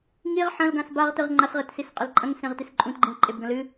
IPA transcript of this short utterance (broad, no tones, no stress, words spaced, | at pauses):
ŋiʁ ħɐ̃lɡãs baʁtɨʁ ŋ͡ǃasʁetsisqʼel ǃʼɐ̃ŋsẽʁtis ǃʼũtɡ͡ǃĩlǃʼebɡɐ̃ lɨ